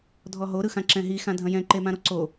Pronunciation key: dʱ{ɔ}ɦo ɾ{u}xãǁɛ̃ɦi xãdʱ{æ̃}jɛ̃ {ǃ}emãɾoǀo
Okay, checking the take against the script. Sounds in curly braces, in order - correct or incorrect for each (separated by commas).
correct, incorrect, incorrect, correct